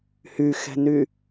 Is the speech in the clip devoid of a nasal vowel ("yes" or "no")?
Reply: yes